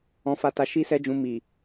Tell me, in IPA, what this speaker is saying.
ɔ̃˧ f a˧ t a˧ ʃ i˦ s ɛ˦ d͡ʒ ũ˧ m i˨

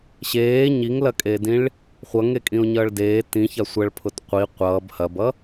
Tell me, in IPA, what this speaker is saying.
ɕ eː ɲ i ŋ l ɐ kʼ eː d ĩ ɭ | χʷ ʌ ŋ e kʼ ĩ o̯ ɲ ʌː ɭ d eː t ĩ ç a sʷ ɐ ɭ pʰ ʊ t qʷ i qʷ ʌː b h ɐ b ʌ

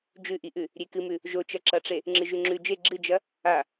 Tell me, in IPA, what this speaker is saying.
d͡ʒ ʉ ʔ i ʔ ʉ | ɾʲ e k ɨ m ʉ | ʒ o t͡ʃ ɐ ǁ ɐ ʈ͡ʂ e | ŋ͡ǁ ɨ ʒ ʉ ŋ͡ǁ ʉ d͡ʒ e ɡ͡ǁ ɨ d͡ʒ ɐ | a

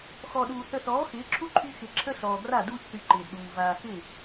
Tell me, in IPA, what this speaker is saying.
x ɔ˨ ɗ uː˨ θ ə˨ θ ɔː˨˦ x ɪː˨˦ ǁʰ u˦ ǃʰ y˦ x ɪ˨ ǁʰ ə˦ ɬ ɔː˨ ɡ r a˦˨ d uː˦ ç θ y˨ ǃ ɪː˨ d ɗ uː˨ v aː˨ x ɪ˦˨

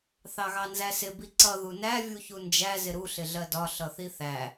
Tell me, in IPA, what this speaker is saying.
θ ɑ ɣ ɑ n z æ s ɪ b i ǀ ʌ ð u n æ vʲ u ç u n d͡ʒ æ z ɪ ɾ u ɬ ɪ ɮ ɜ d ɒ ɬ ʌ θ i θ æ

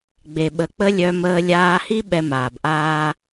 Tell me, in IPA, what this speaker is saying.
ɡ͡b e˨ ɓ ə˨ k͡p ə˦ lʲ œ˧ m əː˧ lʲ aː˧ h i˦ ɓ ɛ˧ m aː˨ b ʔ aː˦

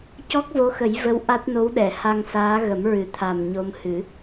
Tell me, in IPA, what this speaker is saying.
c ɔ˦˥ k̚ v o˧˥ x ə˨˩˦ j v ə˧˥ w ʔ a˦˥ t̚ n o˧˥ w ɗ ɛ˨˩˨ h a˧ ŋ s aː˧˥ ɣ ə˨˩˦ m ɹ ɨ˨˩ t̪ʰ a˨˩ m ɲ o˧ m h ɨ˨˩˦

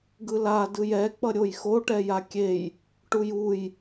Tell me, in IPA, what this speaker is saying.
ɡ ɯ l a d ɯ j ɛ k͡p ʌ ɾʲ o j x o ʈ ɛ j a kʲ e j | ʈ u j u j

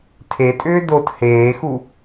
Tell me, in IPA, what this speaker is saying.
tʰ e tʼ ʏː d o t h eː x u

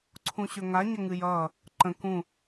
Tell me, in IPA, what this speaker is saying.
ǀʰ ũ ɕ ɵ ŋ a ɲ ə ŋ ɨ j ʌː | ǃ ə̃ k ũ

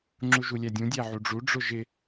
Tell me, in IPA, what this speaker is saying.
ŋ͡ǁ u ʒ u lʲ æ dʲ ũ dʲ æ ʕ u ɖ͡ʐ u ɖ͡ʐ ʊ ʒ ɪ

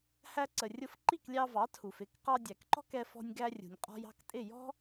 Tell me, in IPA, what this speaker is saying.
h æ˧ ǀ ə˩ rʲ ʊ˧ f ǃ i˥˩ k lʲ ɑ˧ v ɑ˩˥ tʰ u˩ f ɪ˥˩ k q ɑ˧ dʲ æ˩ k ǃ ɔ̤˥ k ɛ˧ f ɔ̤˧ nʲ ɡ æ˧ rʲ ṳ˩ nʲ qʼ ɔ̤˧ j ɑ̤˥˩ k tʼ ɪ˥˩ j ɔ̤˥

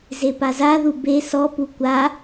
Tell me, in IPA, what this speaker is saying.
z e p a z a ð u b e s ɔ p u kʷ a

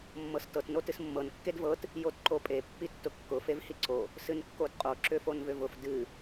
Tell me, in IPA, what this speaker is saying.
mː ɤ s t ɤ t n o t ɨ s mː ɤ n kː e d v ɤ t | j o t ǃ o pʼ e pː i tː ʊ kː ʊ f e v h i ǀ o | s ɨ n kː o d qʼ o ǁ ʏ f o n v ʏ v ʊ f d ɨ

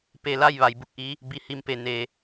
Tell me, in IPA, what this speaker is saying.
p e˧˩ l a˥˨ j ʋ a˩ j b u˥˨ k̚ ʔ i˧˥ | b i˧˩ h i˧˩ m p e˩ n e˩

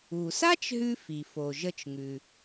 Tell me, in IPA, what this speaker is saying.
u˩ s a˥ t͡ʃ ɦ ʉ˧ f i˩ f o˩ ʒ ə˧ t͡ʃ ŋ ʉ˩

